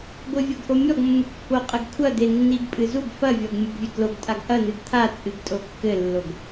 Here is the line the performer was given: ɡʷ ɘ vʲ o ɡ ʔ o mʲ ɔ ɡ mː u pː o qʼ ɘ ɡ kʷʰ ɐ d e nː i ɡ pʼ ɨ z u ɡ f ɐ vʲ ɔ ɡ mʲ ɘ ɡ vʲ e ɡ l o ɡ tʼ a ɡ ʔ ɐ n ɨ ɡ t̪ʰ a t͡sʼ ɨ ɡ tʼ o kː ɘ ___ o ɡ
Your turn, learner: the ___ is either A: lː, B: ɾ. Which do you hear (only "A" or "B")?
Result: A